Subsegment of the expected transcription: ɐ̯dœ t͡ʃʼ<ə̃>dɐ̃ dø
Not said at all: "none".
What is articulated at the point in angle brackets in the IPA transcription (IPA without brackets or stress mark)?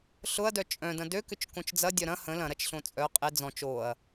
œ̃